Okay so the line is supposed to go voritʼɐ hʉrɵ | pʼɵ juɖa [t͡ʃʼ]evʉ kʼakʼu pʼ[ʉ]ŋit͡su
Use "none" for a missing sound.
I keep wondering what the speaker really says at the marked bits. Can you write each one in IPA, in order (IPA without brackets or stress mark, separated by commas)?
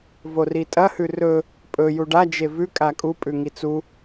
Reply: d͡ʒ, ʉ